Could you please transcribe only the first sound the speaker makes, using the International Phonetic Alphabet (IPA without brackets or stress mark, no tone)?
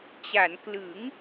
t͡ɕ